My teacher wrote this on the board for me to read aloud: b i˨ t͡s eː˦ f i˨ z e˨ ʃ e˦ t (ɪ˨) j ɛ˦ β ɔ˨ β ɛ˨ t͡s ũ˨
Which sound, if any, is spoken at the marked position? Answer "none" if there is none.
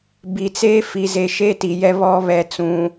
i˨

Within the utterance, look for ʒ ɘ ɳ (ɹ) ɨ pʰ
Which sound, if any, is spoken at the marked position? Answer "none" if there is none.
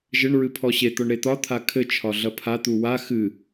ɹ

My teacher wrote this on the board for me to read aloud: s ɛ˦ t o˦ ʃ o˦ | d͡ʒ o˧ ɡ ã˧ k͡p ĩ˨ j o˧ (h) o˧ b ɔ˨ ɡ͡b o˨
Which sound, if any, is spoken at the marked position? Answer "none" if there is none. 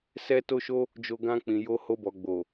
h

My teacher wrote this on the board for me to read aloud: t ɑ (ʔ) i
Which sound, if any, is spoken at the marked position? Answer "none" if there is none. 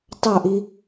ʔ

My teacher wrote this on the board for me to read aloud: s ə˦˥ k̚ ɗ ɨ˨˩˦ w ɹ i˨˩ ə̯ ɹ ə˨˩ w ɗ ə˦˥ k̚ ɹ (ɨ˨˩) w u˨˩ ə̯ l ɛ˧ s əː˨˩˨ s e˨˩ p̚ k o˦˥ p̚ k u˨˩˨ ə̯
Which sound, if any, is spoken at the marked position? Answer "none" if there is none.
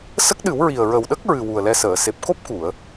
ɨ˨˩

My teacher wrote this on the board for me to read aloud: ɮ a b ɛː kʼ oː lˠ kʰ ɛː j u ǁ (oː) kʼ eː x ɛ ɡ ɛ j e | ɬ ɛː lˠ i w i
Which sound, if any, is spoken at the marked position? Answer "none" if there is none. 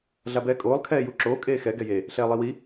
oː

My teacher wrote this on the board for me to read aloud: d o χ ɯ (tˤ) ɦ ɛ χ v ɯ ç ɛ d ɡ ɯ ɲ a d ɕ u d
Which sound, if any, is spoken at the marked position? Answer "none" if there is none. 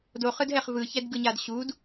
d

